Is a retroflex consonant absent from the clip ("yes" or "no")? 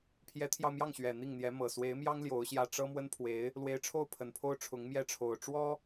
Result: no